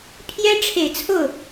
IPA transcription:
pʰjɛ˥ʈ͡ʂʰe˨˩ɪ̯t͡sʰo˥˩ʊ̯

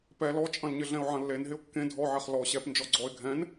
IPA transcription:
pɛ lɔt͡ʃʼɐ̃lɲɪ ɮɛ̃ʊ̯ʕɐ̃lːen ɦɪʊ̯kːẽ dʱɔʕɛχ lɔ ɕɛp nd͡ʒɔɡ͡ǀɔɪ̯ ɡʱɛ̃n

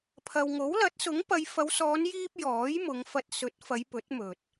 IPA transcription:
pʰɐ˧w ŋo˨˥wlɐ˨˥t̚sʊ˨˥ŋpɐ˨˧j fɐ˨˧wsɔː˨˧njiː˧p̚ jɔː˨˥jmʊ˨˧ŋfɐ˧t̚ sɵ˨˥t̚fɐ˨˧j pɵ˨˥t̚mɵ˨t̚

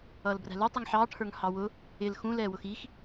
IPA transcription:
ʌːlbræ̤lu tˤiŋħɑː ʈʰə˞ŋhɑwʊ | ɪl xũ lɛːwʊxiːx

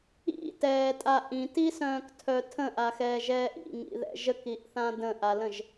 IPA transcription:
ḭtɛːtʼa ʔĩtisœ̃ːktʰœ tʰə̃ʔaxɛːʒɛːʔ ḭŋḭðɛ̰ ʒəkiʔθã də̃ʔalə̃ʒ

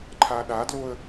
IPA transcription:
ǃʰaɗadloə̯

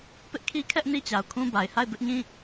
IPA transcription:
pɪ˦ʔkʰi˦kʰɛ˦ʔ ni˦t͡ɕa˨ʊ̯kʰũ˦ba˨ɪ̯ ha˦˨ɪ̯bɪ˦ʔɲĩ˦

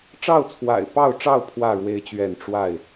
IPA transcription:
ʈ͡ʂɑ˥˨ʊ̯t͡sʰwa̰˨˩ɪ̯pɑ˥˨ʊ̯ʈ͡ʂɑ˥˨ʊ̯ pʰwä˥˨ ɻwe˦ɪ̯t͡ɕɥɛ˥˨n ʈ͡ʂwa˥˨ɪ̯

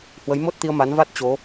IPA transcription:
hwə˨˦jmo˦˥t̚t̪i˧ə̯ ma˨˦nva˦˥t̚ t͡ɕo˨˦

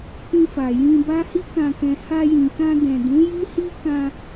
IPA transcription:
kĩ˧fa˨ jĩ˧ba˦ hi˦kã˧kɛ̃˧ ha˧jĩ˨kã˧ dɛ̃˨dũ˨˦ ji˦hi˦ kã˧

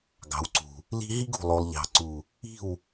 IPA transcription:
ɡɑ̤˨wǀṳ˨ | li̤˦ ɦi˦ɡ ṳ˨lˠo˨lˠʎɑ̤˨ǀu˨ | i̤˦˨w

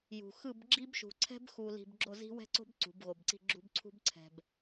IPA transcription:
jṳ˨ xɯ˦˨b ɡ͡ǁi˦bʃṳ˨ǀʰɛ̤˦b xu˨li̤˨b ɡ͡ǁo˦˨zi̤˦wɛ̤˦ǀo̤˦b ǀṳ˨˦bɣo˨bǀi̤˦˨ɡ͡ǁṳ˦b ǀʰṳ˦bǀʰɛ̤˨b

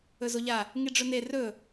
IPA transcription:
ɵzoʎa | ŋiɖ͡ʐɵne rɵ

